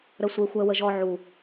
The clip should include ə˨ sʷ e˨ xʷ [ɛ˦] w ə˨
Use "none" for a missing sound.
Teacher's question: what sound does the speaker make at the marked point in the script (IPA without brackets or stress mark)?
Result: ɛ˨